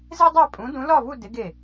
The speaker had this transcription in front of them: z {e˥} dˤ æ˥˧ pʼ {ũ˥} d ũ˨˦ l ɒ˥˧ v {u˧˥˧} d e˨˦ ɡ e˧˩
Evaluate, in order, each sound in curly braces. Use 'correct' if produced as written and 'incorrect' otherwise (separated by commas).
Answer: correct, incorrect, incorrect